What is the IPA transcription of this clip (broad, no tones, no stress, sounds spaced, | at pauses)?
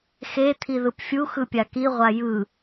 x e t̪ʰ i ð ɯ p fʲ u x ɯ pʲ a k i ʁʷ a j ɯ